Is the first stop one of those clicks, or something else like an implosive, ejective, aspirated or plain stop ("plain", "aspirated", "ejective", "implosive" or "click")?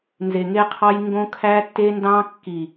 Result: aspirated